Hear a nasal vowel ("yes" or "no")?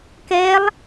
no